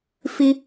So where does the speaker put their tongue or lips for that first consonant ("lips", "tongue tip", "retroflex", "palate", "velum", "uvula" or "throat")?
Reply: lips